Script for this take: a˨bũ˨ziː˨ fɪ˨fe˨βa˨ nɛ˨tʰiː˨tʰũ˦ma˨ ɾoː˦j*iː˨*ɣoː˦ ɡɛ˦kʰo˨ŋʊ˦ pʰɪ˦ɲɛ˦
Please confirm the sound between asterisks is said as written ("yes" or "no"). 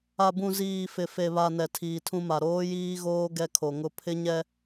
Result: no